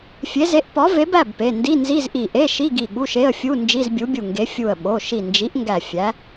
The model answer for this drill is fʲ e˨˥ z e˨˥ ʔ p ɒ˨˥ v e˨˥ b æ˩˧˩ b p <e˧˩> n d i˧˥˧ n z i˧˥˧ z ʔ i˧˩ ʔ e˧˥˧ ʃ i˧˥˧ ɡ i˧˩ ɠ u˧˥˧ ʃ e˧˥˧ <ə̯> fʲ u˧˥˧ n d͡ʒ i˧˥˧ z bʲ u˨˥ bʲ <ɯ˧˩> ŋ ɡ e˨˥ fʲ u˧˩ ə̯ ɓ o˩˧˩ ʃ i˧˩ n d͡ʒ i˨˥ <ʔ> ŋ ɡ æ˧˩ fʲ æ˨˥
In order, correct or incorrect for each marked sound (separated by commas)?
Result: incorrect, correct, incorrect, correct